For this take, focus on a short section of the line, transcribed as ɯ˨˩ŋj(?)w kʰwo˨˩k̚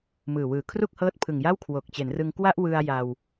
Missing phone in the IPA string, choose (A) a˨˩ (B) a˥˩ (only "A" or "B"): B